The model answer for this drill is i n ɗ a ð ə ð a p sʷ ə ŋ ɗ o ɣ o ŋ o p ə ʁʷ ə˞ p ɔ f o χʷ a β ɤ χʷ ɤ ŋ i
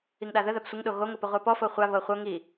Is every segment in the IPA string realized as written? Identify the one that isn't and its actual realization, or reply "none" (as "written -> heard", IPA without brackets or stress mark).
n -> ŋ